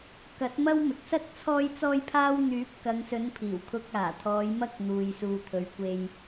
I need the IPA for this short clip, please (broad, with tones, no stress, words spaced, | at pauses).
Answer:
kɐ˨˥t̚mɐ˥wmɪ˨k̚ sɐ˥t̚ t͡sʰɔː˥jt͡sɔː˥jpʰaː˥w n̪yː˨˥p̚kɐ˨˧ŋsɵ˨˧n pʰiː˨˩wkʰʊ˧k̚aː˨˩t̪ʰɔː˨˧j mɐ˥k̚n̪uː˨jsuː˨ t̪ʰɵ˨ɥkʷe˧j